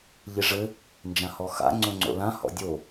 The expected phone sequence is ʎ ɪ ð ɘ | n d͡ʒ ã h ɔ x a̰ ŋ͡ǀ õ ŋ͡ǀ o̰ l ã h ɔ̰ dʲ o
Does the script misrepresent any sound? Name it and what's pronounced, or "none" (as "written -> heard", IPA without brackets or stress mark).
ð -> ʐ